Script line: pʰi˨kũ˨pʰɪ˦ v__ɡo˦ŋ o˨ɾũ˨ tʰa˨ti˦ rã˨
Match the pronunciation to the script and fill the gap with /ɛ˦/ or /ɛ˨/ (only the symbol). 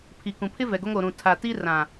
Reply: ɛ˨